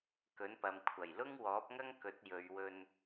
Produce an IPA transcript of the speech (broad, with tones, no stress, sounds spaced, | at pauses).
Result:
k ɵ˨˥ n p ɐ˨ m kʷʰ ɐ˨˩ j l ʊ˥ ŋ w ɔː˨˥ p̚ ŋ ɐ˥ ŋ k ɵ˨˥ t̚ j ɵ˨˧ ɥ w ɵ˧ n